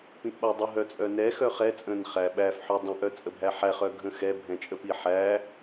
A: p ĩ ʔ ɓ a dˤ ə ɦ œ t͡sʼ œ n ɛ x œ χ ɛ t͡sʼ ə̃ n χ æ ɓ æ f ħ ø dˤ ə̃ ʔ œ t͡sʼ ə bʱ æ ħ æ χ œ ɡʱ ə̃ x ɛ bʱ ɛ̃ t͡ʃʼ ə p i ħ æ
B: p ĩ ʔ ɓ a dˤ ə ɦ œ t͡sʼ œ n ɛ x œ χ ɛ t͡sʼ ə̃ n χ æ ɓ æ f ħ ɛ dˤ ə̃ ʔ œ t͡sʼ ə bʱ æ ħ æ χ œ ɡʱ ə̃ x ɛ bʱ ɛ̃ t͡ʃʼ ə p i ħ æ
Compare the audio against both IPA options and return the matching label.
A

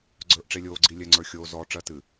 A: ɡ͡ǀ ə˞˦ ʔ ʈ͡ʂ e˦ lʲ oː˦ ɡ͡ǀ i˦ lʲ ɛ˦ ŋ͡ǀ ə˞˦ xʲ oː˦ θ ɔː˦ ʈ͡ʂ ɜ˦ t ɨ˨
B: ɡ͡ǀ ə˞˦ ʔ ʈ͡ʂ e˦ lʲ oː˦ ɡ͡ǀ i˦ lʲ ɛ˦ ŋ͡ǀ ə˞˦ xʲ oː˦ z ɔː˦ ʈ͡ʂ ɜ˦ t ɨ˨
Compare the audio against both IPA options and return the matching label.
B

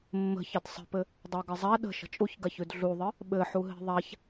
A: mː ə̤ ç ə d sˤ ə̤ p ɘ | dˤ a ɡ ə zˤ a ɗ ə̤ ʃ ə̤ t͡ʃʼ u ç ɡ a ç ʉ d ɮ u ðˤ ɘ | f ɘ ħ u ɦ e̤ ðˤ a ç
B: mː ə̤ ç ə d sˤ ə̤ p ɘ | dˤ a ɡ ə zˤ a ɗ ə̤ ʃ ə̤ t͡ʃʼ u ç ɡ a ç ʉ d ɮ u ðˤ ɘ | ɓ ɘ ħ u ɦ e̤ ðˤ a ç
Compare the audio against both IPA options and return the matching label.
B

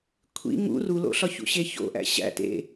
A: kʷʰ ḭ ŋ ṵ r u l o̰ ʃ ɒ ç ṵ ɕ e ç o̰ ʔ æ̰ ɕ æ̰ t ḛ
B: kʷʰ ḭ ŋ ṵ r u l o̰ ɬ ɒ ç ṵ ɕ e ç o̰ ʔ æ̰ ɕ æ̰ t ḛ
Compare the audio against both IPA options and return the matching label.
B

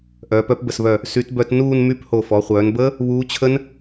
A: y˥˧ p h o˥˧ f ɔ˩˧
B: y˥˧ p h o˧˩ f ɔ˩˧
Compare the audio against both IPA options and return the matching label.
B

